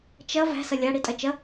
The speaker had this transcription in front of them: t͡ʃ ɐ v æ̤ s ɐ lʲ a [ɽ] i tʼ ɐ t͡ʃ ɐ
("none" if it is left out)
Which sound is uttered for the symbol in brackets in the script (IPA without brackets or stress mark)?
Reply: ɽ